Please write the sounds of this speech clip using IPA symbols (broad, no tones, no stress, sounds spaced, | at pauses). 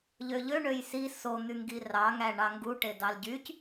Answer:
ʎ ø ʎ ø ɳ ø j s i s o n̪ y ŋ ɡ i r ɑ ŋ æ ɳ ɑ ŋ ɡ u ʈ e d ɑ l ɟ y c